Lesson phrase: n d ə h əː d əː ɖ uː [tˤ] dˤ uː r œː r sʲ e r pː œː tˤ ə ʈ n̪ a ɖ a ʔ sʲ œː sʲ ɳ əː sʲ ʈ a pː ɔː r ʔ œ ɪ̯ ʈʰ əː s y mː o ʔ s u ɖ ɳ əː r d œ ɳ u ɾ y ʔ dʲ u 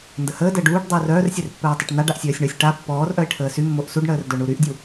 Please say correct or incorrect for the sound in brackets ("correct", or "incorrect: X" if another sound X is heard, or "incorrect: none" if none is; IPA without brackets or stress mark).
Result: incorrect: ʈ